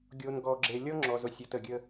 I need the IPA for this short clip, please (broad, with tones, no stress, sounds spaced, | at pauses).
ɡʲ o˨ n ɡ ɔ˨ ɡ͡ǁ e˨ lʲ ɔ˦ ŋ͡ǁ ɔ˨ z o˨ sʲ ɔ˨ t ə˨ ɡʲ ə˦